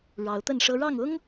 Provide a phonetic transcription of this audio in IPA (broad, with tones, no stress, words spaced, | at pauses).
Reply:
ɻɑ˨˦ʊ̯t̪ə˥˨nʂɤ˦ ɻɑ˥˨ŋʊ˦ŋ